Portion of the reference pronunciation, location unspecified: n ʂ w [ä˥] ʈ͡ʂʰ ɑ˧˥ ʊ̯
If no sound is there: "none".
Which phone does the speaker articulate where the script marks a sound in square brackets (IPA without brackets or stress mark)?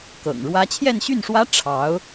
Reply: ä˥